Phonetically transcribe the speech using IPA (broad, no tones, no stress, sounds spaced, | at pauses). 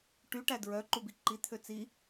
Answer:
ʈ y ʈ æ d ɹ œ ǃ u b i ǃ i t̪ʰ ø t͡s i